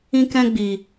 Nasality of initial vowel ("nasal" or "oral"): nasal